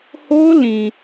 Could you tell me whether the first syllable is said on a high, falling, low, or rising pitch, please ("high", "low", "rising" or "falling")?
high